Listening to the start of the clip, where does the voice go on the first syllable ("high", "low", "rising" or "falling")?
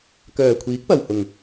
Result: low